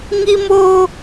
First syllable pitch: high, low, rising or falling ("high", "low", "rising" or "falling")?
high